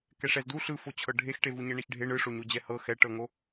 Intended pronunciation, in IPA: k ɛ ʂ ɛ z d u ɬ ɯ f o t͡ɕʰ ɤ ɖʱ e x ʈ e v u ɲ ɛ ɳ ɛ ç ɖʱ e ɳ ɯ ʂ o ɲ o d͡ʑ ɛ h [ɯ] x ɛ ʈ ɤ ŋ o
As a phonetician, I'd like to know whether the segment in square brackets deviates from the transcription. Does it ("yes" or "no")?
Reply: yes